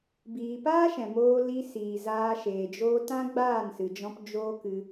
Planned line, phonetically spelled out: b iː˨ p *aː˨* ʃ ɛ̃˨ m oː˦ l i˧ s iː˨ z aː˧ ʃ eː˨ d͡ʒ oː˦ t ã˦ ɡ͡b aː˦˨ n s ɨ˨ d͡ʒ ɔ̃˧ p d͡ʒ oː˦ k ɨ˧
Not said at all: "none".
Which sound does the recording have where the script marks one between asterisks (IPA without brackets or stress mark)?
aː˦